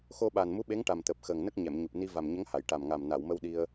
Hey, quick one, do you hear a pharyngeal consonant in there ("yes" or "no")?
no